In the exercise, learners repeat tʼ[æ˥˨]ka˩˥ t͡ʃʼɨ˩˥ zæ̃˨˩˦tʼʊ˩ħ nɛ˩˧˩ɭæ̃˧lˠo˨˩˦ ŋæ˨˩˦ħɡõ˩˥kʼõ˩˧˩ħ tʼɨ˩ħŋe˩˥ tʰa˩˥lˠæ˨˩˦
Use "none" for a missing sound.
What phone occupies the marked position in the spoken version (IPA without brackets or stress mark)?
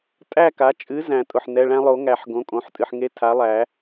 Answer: æ˥˨